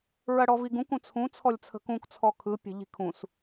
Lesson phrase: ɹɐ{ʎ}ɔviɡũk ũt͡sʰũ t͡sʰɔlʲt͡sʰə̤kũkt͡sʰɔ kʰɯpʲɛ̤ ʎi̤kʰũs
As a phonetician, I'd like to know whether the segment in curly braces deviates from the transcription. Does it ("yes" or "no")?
yes